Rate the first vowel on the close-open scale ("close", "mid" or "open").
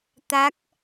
open